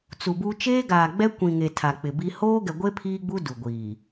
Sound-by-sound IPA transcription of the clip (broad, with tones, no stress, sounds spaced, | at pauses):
t͡s u˨ b u˦ t͡ʃ eː˦ ɡ aː˨ ɡ͡b ɛ˦ kʷ ĩ˨ ŋ e˨ tʰ a˨ k͡p ɪ˨ b i˦ h oː˦ ɡ ɛ˨ ɡʷ e˦ pʰ iː˦ ɡ͡b u˦ d u˨ ɡʷ iː˨